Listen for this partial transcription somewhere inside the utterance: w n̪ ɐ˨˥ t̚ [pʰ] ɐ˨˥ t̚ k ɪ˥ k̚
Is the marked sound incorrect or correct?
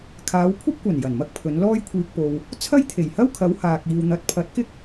correct